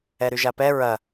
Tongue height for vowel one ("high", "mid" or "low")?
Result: mid